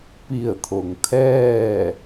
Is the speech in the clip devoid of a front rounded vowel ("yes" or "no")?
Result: yes